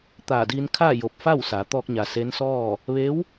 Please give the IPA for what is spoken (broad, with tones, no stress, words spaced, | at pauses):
t̪aː˧˩diː˧nkʰaː˥˨ jo˧˩p̚fa˥˨wsa˩˧ t̪ɔː˧k̚ɲa˩ se˧˥nsɔː˥˨ | ʋe˧˥w